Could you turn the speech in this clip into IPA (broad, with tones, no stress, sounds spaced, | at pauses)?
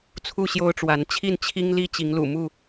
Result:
t͡sʰ u˥˨ ɕ j o˦ ʊ̯ ʈ͡ʂ w a˨˦ n t͡ɕʰ i˥˨ n t͡ɕʰ i˦ ŋ l i˦ t͡ɕ i˨˦ ŋ l ṵ˨˩ m u˥˨